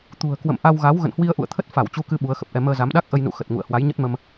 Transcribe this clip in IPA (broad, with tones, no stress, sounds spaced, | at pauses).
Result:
t̪ ṳ˨˩ ə̯ k w ə̰˧˨ m ʔ a˧ w ɣ a˨˦ w ɣ ə̰˧˨ n h w i˧ ə̯ ʔ ṵ˧˨ ə̯ t̪ʰ ə˦˥ t̚ f a˧˩ w t͡ɕ u˧ k ɨ˧ ɓ u˨˦ ə̯ x ə˨˩ p̚ ʔ ɛ˧ m əː˧ z a˨˦ m ɗ a˦˥ k̚ ʔ ə˧ j n ṵ˧˨ x ə˨˩ t̚ ŋ ṵ˧˨ ə̯ h w a˨˦ j ɲ ə˦˥ t̚ m ə˧ m